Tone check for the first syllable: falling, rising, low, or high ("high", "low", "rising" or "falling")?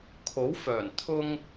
rising